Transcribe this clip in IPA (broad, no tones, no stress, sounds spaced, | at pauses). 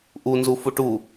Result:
ʔ u n z u f u ʈ u